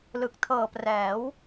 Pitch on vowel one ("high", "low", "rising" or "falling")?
low